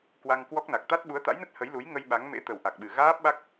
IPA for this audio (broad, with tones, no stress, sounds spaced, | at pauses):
k w a˧ ŋ k w ɔ˦˥ k̚ n a˨˩ k̚ t̪ a˦˥ t̚ ɓ u˨˦ ə̯ t̪ a̰˧˥ j n ə˦˥ t̚ h ə˨˦ j l u˨˦ j ŋ ə˧ j ɓ a˨˦ ŋ m ḛ˧˥ t̪ ə˨˩ w ʔ a˨˩ k̚ ɓ ɨ˨˩ ɣ aː˦˥ p̚ ɓ a˦˥ k̚